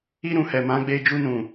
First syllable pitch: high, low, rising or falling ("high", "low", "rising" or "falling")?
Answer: high